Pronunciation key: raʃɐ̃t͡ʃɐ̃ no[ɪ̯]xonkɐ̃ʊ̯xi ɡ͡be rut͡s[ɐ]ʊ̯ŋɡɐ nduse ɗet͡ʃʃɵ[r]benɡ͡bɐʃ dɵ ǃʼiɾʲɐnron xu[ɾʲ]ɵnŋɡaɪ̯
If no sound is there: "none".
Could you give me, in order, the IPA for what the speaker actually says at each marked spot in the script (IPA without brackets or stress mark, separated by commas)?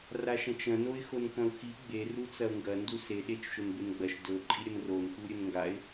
ɪ̯, ɐ, n, ɾʲ